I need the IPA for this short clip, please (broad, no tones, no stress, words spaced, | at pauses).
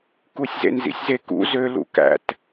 kusʲzḛnzḭsʲze kṵ zølṵ kæ̰t